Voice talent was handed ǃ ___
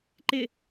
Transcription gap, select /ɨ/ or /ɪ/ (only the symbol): ɪ